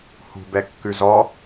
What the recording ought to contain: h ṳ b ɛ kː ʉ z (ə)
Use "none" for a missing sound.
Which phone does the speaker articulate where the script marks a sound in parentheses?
ɔ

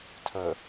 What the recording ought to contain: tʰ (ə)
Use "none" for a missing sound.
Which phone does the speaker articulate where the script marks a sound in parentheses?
ə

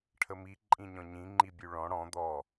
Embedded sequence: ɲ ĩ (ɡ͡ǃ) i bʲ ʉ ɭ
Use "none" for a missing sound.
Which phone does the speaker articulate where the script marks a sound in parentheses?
ŋ͡ǃ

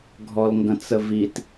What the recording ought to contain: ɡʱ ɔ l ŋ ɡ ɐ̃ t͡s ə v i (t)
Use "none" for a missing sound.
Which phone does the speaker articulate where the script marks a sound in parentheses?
t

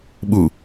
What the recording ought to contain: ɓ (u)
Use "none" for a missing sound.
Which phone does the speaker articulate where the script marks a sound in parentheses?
u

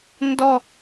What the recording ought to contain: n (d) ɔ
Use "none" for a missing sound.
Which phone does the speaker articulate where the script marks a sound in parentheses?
d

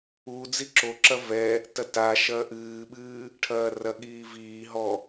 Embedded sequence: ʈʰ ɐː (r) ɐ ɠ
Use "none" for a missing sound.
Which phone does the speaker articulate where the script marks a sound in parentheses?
r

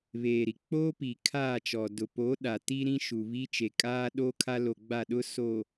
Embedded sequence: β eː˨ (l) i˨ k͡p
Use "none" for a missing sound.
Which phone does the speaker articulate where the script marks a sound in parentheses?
ɾ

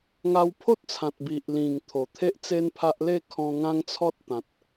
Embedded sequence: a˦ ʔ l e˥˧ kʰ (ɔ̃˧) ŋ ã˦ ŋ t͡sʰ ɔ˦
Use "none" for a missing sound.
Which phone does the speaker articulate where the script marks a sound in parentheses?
ɔ̃˧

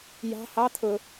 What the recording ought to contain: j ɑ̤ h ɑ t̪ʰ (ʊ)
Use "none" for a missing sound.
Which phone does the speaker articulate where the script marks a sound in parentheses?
ʊ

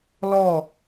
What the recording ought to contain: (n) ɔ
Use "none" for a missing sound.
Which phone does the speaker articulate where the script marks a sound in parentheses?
l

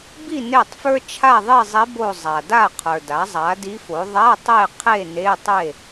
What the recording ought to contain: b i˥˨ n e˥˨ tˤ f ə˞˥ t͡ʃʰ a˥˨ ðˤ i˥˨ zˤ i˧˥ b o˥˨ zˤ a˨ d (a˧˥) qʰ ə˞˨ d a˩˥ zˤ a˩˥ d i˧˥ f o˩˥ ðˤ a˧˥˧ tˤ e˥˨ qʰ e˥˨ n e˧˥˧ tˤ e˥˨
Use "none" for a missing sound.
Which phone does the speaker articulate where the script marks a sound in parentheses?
a˥˨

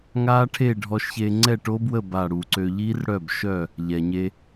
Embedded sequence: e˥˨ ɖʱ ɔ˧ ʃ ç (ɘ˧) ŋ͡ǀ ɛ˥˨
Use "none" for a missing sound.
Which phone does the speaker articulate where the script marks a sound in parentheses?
e˧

